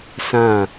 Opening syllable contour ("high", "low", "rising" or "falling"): falling